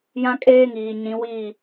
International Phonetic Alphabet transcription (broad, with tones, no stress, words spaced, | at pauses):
jã˦kʼeː˦ŋiː˨ ɲĩ˨˦wiː˦˨